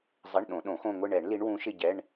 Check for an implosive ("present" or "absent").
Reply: present